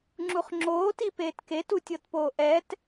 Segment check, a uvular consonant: present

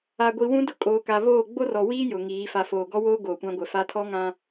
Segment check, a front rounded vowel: absent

